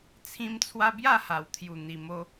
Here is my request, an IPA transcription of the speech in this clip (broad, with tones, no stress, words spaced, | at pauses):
t͡sʰĩ˦mt͡sʰwa˦ bja˥˧ha˨˩wt̪ʰju˨˩ n̪i˨˩mo˧